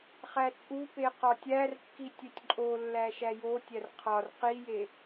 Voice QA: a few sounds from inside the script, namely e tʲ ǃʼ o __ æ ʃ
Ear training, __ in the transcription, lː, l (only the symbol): lː